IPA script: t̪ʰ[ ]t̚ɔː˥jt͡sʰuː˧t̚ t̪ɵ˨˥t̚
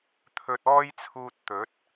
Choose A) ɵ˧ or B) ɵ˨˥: A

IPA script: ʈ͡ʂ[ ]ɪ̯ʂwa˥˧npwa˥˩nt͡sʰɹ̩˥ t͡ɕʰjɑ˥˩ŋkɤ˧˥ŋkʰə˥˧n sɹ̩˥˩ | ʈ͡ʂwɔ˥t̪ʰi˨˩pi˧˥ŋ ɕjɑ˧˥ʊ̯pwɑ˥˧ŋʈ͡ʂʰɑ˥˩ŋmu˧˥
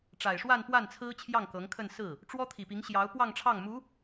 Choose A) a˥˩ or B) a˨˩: B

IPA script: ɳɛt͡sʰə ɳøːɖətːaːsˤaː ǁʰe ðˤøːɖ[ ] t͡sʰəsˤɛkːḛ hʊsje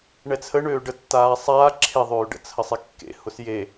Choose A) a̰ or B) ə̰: B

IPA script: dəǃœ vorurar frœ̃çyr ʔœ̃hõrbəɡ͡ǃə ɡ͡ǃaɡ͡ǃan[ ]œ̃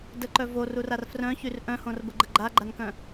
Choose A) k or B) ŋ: A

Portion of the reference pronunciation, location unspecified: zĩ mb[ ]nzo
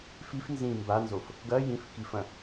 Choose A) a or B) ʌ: A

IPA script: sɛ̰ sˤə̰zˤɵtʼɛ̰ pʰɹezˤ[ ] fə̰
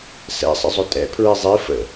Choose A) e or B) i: B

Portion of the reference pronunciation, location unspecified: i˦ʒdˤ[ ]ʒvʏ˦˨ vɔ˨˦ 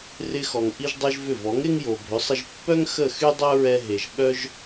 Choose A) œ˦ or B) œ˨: A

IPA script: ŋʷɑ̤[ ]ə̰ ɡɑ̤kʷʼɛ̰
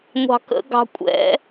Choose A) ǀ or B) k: B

